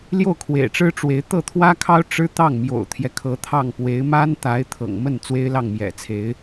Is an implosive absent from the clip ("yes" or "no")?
yes